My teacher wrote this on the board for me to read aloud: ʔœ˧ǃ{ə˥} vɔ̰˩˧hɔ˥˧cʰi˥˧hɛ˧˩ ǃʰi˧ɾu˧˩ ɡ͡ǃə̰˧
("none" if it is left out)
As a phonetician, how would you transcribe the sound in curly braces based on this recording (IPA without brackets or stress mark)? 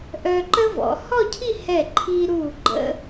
ə˥